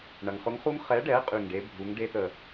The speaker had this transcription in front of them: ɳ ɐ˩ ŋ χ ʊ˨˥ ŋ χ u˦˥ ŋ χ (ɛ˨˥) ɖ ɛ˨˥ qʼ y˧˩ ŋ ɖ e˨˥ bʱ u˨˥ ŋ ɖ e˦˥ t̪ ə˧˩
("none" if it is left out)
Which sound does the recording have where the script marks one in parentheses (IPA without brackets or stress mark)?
ɛ˨˥